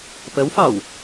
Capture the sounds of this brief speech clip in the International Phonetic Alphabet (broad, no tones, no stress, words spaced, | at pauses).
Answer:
pəwfɑw